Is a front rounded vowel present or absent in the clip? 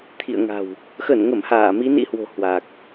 absent